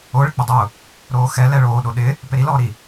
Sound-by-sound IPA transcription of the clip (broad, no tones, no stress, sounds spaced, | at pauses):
o ɭ ɪ k͡p ʊ dˤ ʊː | ɾ oː x ɛ l ɛ ɭ oː ɗ o ɗ ɪː | p e ɾ i l ɔː ɾ i